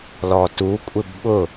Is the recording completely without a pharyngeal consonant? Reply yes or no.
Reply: yes